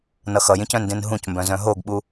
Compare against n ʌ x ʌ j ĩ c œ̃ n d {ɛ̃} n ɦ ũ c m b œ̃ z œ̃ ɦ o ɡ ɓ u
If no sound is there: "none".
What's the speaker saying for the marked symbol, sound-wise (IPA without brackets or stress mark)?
ẽ